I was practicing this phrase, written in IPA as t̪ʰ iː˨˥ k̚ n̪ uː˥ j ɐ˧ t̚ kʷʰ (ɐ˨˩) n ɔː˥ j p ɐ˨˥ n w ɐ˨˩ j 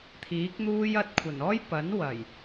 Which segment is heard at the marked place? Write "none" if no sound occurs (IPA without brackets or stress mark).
ɐ˨˩